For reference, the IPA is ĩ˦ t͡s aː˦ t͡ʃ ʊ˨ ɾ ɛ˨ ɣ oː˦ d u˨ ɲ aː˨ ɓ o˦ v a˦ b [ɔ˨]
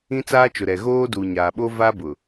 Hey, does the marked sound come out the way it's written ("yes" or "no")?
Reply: no